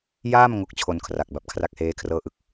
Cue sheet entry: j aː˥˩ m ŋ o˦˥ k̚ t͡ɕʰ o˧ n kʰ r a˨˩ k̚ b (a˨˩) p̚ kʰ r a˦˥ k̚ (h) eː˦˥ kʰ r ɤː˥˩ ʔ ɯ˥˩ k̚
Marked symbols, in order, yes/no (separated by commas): yes, yes